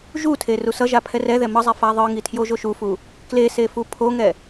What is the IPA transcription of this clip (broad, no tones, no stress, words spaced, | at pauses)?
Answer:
ʒutʰe rusʌʒa pʰɛrɛðɛ mʌzˤɛ faðˤɯŋi tʰjoʒoʃufu | klese fupʰoŋɛ